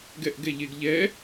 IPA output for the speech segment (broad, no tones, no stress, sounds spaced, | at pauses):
ɡ ɛ ʔ ɡ ɛ ʎ e ɡ ʎ ɛ